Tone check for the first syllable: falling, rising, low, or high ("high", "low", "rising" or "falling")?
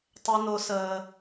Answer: high